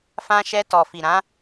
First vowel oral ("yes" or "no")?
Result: no